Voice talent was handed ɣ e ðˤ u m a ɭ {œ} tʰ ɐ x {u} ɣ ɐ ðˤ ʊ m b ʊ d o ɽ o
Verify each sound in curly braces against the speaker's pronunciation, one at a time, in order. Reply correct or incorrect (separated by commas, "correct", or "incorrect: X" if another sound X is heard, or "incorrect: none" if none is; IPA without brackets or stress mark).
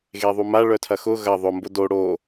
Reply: correct, incorrect: ʊ